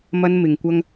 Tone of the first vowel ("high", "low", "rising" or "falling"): high